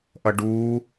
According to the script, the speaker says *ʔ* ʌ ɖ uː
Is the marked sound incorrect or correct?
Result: correct